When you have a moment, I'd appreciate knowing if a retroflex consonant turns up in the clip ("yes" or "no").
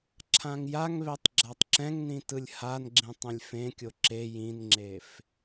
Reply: no